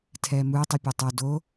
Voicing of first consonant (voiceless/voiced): voiceless